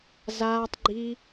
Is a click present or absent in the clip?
present